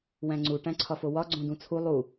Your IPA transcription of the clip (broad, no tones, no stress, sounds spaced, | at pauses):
w æ̃ ŋ͡ǀ u ʈ æ̃ ǀʰ ɒ f o w ɒ ɡ͡ǀ õ d ũ t͡sʰ u lˠ u